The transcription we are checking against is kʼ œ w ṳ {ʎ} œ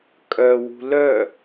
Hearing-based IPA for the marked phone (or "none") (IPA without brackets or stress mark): l